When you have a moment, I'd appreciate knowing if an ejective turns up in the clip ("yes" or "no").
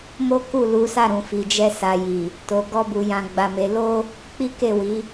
no